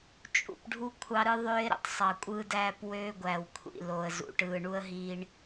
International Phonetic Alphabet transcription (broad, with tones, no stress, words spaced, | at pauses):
t͡ʃʼṵ˨p ɖʱu˦ kʷʰɑ˦ɾɯ˦ ðˤøː˦ɪ̯ɾṵ˨tˤsˤɑ˨ kʷʼɯː˦dæː˦pwøː˦ ɡʷæ˨wkʷʰḭ˨lo˨ə̯zṵ˨ ʈɯː˨ɳu˦ə̯ɦiː˦ɳ